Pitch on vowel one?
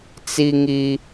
high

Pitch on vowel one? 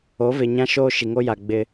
rising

